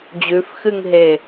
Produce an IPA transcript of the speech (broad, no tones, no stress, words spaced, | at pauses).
d͡ʑʉfxɨŋɦe